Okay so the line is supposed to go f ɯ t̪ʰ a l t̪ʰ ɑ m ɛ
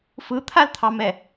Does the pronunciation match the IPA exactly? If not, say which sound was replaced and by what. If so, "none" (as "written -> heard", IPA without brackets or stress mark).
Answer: none